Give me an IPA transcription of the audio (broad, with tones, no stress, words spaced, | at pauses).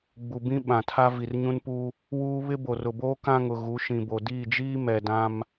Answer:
ɡ͡bu˨bĩ˦ ɓã˨tʰa˦ vi˨rɲũ˦npu˦ | wuː˦ βɪ˦bo˨rʊ˨boː˦ kã˦ŋʊ˨ ɣu˨˦ʃĩ˨bo˨ diː˦˨d͡ʒiː˦ mɛ˨dã˦m